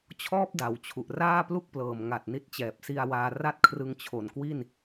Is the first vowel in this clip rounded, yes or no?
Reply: yes